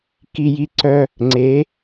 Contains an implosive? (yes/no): no